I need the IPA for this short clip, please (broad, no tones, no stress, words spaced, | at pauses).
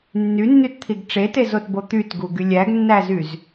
nːynːytt̪ʰiɡ ʈ͡ʂetezotbo t̪ytɡuɡy lʲæɡnːæzyz